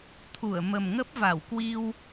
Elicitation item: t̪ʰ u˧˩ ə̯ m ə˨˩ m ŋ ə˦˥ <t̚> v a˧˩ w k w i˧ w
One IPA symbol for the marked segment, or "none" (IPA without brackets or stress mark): p̚